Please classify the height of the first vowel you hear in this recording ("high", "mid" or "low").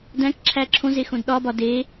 low